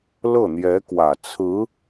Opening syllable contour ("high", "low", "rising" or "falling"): falling